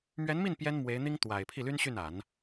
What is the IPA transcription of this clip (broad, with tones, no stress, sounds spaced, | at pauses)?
m ɥ ɛ˧˥ n m i˥˩ n p j ɛ˥ n m w e˧˥ ɪ̯ n̪ i˥ ŋ t̪ w a˨˩ ɪ̯ pʰ i˥˩ l y˥ n ɕ y˥˩ n a˨˩˦ n